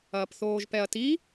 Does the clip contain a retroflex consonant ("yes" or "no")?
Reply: no